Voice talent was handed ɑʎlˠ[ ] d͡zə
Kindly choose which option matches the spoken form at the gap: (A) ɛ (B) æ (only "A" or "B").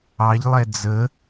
A